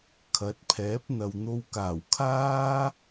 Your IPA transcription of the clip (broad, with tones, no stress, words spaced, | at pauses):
kʰɐ˨˥t̚pʰɛː˨˥p̚n̪ɐ˨w n̪o˧wkaː˨˩w kʰaː˥